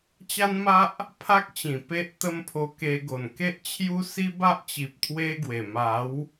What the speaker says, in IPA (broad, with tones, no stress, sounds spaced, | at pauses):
t͡ɕ a˦ n m a˦ ʔ | pʰ a˦ k̚ t͡ɕ ĩ˨˩ p e˦ ʔ t̪ ə˦ m pʰ o˧ k e˧ ɡ o˨˩ n k e˦ ʔ t͡ɕʰ j u˦ s i˦ b a˦ ʔ t͡ɕ i˨ p̚ t̪ʰ w e˦ ɡ w e˨˩ m a˨˦ w